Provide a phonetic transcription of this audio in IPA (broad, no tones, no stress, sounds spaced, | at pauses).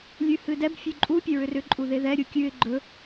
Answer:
lʲ ʉ h ɨ d ɛ b fʲ ʉ ǃʼ u pʲ ɛ ɹ ʏ r ʏ ǃʼ u ð e ð ɛ ɾʲ u kʲ ʉ ɪ̯ ɡ͡ǃ ɵ